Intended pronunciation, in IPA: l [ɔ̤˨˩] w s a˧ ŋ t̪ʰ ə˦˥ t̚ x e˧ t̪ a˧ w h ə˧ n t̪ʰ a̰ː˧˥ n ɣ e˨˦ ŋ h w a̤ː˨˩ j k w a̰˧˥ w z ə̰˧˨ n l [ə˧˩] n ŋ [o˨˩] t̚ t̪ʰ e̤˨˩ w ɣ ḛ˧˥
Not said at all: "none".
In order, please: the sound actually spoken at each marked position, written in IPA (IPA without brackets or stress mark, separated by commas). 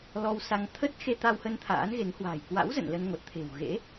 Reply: ɔ˧, ə˧, o˨˩